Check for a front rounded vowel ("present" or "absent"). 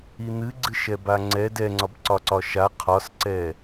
absent